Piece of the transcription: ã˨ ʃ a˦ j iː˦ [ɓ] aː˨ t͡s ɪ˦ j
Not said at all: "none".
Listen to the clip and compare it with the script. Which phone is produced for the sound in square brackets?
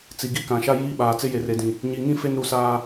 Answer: ɓ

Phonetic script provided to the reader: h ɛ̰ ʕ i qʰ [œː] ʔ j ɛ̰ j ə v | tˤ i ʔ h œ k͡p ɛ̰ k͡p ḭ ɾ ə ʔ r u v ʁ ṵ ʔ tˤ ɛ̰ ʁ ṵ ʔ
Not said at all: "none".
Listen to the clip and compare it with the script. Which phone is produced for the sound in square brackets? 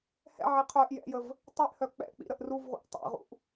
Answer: œː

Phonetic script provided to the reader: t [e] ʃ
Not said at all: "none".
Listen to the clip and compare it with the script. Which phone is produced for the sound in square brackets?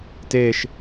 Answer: e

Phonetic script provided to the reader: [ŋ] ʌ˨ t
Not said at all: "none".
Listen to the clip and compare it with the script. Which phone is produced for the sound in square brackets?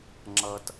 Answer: ŋ͡ǁ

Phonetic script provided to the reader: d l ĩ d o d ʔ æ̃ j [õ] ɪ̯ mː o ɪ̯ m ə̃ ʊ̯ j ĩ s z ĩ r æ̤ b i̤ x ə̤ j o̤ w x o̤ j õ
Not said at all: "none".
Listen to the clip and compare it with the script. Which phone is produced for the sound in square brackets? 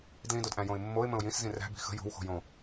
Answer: õ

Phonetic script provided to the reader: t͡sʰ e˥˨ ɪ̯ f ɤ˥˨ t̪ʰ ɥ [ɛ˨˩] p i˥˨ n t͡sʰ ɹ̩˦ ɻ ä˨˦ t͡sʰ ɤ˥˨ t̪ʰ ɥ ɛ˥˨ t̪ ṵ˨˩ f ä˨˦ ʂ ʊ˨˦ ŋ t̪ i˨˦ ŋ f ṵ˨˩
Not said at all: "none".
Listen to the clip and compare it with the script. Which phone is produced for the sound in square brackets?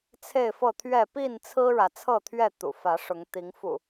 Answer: ɛ˥˨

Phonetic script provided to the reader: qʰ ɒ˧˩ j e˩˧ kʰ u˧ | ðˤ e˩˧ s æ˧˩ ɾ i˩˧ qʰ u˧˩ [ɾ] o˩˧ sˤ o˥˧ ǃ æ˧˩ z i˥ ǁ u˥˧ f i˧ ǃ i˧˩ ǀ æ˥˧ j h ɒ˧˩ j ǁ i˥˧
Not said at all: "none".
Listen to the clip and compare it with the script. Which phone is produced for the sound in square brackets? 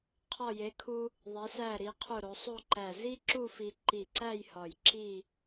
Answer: ɾ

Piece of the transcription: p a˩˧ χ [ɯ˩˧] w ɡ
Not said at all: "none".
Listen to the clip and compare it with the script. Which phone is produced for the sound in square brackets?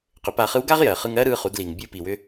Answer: ɯ˧˥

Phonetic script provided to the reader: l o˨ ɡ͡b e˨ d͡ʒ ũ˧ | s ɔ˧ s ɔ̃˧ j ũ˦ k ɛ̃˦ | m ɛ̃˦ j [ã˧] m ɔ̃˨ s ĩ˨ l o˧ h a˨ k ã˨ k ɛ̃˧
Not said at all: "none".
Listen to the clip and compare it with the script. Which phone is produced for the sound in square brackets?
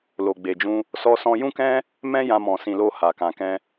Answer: ã˧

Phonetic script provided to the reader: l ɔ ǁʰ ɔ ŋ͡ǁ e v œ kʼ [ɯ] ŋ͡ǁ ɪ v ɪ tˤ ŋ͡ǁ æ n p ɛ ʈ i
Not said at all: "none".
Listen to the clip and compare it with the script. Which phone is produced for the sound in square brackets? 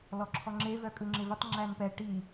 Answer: ɯ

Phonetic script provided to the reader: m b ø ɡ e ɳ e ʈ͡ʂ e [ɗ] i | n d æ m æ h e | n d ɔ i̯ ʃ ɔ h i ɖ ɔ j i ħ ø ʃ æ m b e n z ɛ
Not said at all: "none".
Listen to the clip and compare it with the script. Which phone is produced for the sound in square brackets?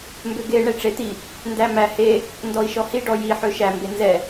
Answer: t̪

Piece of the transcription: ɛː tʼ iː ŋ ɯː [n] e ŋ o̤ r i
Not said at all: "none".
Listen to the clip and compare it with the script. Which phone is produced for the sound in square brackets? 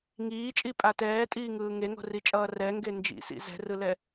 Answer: ŋ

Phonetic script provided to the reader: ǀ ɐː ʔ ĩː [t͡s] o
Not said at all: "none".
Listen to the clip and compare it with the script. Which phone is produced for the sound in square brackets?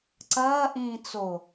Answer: t͡s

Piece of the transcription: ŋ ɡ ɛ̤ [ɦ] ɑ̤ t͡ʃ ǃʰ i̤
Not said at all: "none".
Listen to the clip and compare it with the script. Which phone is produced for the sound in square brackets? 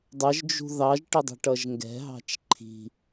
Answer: ɦ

